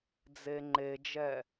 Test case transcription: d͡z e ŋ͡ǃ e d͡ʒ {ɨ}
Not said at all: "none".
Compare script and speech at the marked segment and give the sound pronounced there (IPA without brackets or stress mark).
ɛ